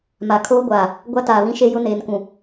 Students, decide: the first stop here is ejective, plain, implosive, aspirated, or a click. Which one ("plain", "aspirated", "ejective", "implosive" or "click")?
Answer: aspirated